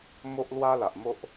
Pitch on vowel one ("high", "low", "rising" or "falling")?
high